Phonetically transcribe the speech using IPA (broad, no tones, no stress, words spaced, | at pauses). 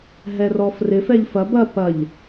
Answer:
ɦɛrɔfrɪ fɛʎfɐb ɐ pɐʎ